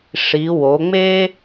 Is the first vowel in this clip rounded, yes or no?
no